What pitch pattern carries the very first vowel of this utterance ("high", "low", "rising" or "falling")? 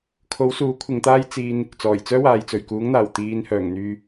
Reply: rising